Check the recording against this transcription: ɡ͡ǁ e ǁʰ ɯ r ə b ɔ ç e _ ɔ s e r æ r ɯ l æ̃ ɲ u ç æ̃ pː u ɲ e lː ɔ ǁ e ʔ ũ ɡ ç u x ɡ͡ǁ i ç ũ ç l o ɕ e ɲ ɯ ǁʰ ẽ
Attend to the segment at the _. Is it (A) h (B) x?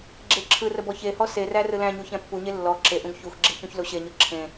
A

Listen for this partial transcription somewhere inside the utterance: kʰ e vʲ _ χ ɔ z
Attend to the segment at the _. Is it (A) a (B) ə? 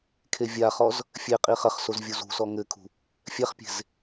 A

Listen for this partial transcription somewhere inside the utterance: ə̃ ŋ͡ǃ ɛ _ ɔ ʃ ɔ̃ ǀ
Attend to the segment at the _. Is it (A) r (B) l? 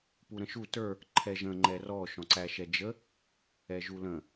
A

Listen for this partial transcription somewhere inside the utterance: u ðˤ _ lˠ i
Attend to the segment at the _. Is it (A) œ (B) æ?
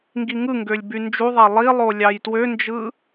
B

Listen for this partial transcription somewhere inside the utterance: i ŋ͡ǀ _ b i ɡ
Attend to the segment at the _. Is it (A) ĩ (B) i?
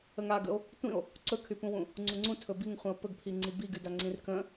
B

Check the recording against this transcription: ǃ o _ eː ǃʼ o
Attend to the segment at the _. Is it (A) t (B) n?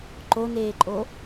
B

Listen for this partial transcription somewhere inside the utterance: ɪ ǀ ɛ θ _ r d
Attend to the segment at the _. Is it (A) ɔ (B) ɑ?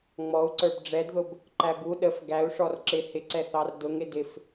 B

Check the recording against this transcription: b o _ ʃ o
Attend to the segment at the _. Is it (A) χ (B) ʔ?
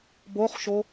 A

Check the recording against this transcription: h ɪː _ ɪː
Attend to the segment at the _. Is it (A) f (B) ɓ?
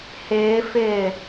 A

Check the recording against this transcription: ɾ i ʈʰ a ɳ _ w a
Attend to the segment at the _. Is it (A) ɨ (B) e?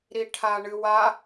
A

